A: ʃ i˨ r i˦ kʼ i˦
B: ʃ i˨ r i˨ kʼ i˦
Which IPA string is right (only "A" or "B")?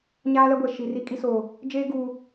A